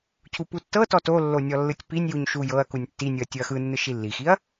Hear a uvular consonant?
no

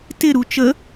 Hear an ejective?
no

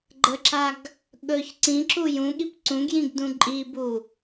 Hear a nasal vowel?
yes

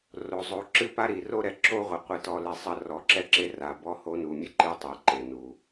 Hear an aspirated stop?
no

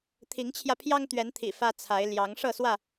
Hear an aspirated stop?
yes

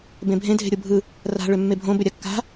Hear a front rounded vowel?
yes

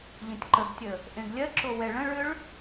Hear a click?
yes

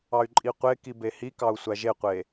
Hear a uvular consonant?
yes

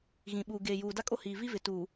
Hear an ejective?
yes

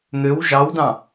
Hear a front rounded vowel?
yes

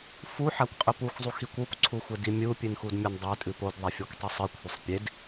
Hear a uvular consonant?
yes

